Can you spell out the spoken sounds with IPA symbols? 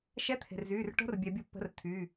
ʃ ɛ˧˥˧ t̪ʰ e̤˩ r z yː˩˧˩ r ʈ o̤˧˥˧ r bʲ ɛ˨˩˦ bʲ o˧˥ pː ə̤˧˥˧ r t̪ʰ yː˩˧˩

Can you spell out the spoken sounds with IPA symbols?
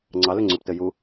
ŋ͡ǀ ɑ l ʏ ŋ͡ǀ ʏ p t ɘ j u

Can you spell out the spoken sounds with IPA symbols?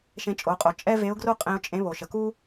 ʃ ẽ˧ t͡ʃʼ o˩˧ qʼ o˩ t͡ʃʼ ɛ˥ v e˧˥ ʊ̯ ɡ r o˥ qʼ ẽ˧ ʊ̯ t͡ʃʼ ẽ˧˥ β o˩ ʃ ə˩ k u˥

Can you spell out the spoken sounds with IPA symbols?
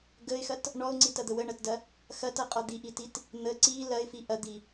ɡ ə ɪ̯ x ɐ t | ɳ ɔ ʊ̯ ŋ͡ǀ i t ɐ d̪ ə w ə ɳ ɐ t d ɐ | x ɐ t ɐ qʼ ɔ d̪ i ʔ i t i t | n̪ ə ǀ i l ɐ ɪ̯ f i ʔ ɐ d̪ i

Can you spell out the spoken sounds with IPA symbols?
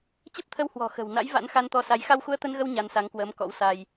t͡ɕ ə˦˥ p̚ t̪ʰ ə˧ w h w ɔ̤˨˩ x ə̤˨˩ w n a̰˧˥ j v a̰˧˥ n x a˧ n t̪ ɔ˧ s a˨˦ j x a˧ w x u˧ ə̯ t̪ ə˧ n ɣ ə˧ w ɲ a˧ n s a˨˦ ŋ k w əː˨˦ m k ɔ̰˧˥ w s a˧ j

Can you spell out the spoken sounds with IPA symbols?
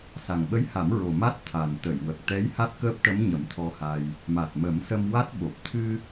s a˨˩ ŋ ɓ ə˧˥ j h a˨˩˦ m ɹ o˨˩ m a˦˥ t̚ t̪ʰ a˨˩ n t̪ ə˨˩˨ j w ə˨˩ k̚ t̪ ɛ˧˥ j h a˦˥ t̚ k əː˦˥ p̚ ʈ ə˧˥ m ɲ ə˨˩˦ m t̪ʰ ɔ˧ h a˧ j | m a˨˩ t̚ m ə˨˩˦ m s ə˧ m w a˦˥ t̚ ɓ o˨˩ p̚ t̪ʰ ɨ˧

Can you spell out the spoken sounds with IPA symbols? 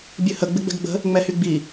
bʲ ɨ h ə ɡ͡b ɪ ɡ͡b ɛ̤ ɡ ɡ͡b ə̤ | ŋ͡m ɛ h y ɡ͡b i

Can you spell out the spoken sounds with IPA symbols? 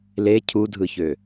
l e cʰ u dʱ ɯ ç ø

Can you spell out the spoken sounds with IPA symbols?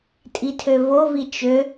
tʼ i tʰ ø v o v i t͡ʃ ø

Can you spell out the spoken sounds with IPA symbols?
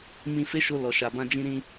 m ĩ˧ f e˦ ʃ o˧ l ɔ˨ ʃ a˨ b ã˧ d͡ʒ ĩ˧ ɾ ĩ˧

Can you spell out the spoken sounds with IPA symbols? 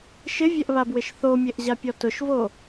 ʃ ɪ vʲ ɛ ʔ β a b w ɪ ʃ θ o mʲ e ʔ ʑ a pʲ ɔ t ʊ ʃ v o

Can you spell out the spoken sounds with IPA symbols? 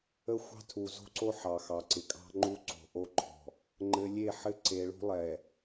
ə˦ xʷ ɑ̤˦ tʰ u˨ z o̤˦ ǀ o˦ ħ ɑ˨ x ɑ˨ ǀ ɪ˨ kʼ ɑ̤˦ ŋ͡ǃ u˦ ǀ o̤˨ ʔ o˦ ǃʰ ɔ̤˨ | ŋ͡ǃ ɘ˨ lʲ e˦˨ ħ ɘ˦ ǀ e˨ ɭ ṳ˦ lˠ ɛ˨

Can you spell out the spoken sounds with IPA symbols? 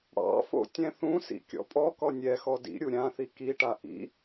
ɽ ɑ̰ f o̰ tʲ ɛ̃ θ ũ s ḭ kʲ ɔ̰ pʼ ɔ k ɔ nʲ ɛ x ɔ d ḭ ɾʲ u ɾʲ ã θ i k i ʈ a ʔ ḭ

